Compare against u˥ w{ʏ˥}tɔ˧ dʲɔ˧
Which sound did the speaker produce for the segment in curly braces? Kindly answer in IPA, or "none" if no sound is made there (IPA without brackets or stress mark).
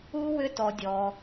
ʏ˥